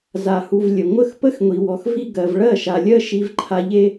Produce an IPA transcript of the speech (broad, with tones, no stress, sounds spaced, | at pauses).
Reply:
z a˨ h u˨ v lʲ ə˨ ŋʷ ə˥˨ x p ə˦ x ŋʷ i˨ w ɔ˨ x v i˦ ɡ ɜ˨ v ɭ ɜ˥˨ ʃ a˨ lʲ ɜ˦ ʃ i˦ v ǃʰ a˦ ʎ e˦